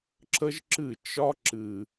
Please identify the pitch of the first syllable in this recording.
high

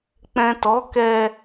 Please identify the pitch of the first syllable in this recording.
low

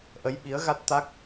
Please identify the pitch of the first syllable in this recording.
rising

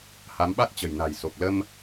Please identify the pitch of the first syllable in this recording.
rising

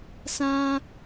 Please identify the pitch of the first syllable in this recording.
high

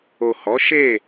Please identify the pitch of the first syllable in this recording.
low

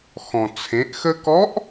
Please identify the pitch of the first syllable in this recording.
low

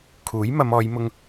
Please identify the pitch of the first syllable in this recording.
rising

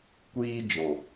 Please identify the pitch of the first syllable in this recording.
high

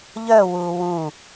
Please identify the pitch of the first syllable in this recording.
falling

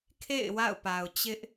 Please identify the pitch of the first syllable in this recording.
falling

